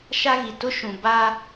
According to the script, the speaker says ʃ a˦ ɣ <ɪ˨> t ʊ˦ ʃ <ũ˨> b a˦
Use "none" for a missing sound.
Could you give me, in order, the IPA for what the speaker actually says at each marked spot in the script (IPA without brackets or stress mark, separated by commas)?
i˨, ũ˨